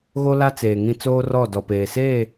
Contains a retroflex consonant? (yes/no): no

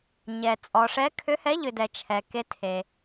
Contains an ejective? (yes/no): yes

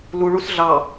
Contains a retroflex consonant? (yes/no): yes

